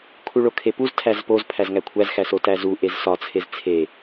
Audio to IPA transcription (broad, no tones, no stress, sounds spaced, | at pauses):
kʰ u ɭ o kʰ e p u z tʰ æ z p o z pʰ æ z ŋ æ kʷʰ æ z x æ s o t æ z u ʔ e z s ɒ t͡sʰ e z t͡sʰ e